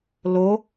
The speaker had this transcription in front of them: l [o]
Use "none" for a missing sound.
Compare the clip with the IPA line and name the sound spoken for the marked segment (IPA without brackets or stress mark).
o